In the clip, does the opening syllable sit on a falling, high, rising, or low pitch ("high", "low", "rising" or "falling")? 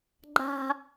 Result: low